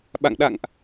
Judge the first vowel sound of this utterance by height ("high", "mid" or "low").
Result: low